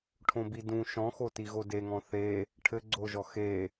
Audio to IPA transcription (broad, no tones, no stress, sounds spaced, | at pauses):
ʈʰ õ b i d ũ ʃ ɔ̃ x o t i ɣ o d e ŋ ɔ̃ θ e | ʈʰ ɘ ɡ͡ǀ o ʒ ɔ x e